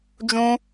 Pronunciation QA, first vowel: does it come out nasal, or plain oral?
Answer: nasal